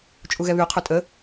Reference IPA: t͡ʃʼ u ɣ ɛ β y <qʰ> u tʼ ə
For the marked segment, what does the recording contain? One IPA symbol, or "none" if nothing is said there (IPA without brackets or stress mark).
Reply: qʰ